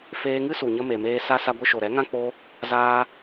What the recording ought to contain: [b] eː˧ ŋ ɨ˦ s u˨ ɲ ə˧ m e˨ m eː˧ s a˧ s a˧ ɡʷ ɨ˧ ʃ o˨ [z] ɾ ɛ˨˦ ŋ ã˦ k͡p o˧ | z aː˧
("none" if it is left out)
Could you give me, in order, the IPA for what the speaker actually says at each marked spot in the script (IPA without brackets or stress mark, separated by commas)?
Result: f, none